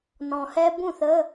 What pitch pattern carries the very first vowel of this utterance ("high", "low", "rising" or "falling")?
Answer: low